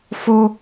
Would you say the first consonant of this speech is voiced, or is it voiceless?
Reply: voiceless